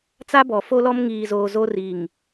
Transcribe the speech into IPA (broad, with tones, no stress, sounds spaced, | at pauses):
t͡s a˦ b ɔ˨ f o˦ l ɔ˦ m ŋ iː˨ z oː˨ z o˦ r i˨ ŋ